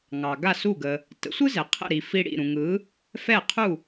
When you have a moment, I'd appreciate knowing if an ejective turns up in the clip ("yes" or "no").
no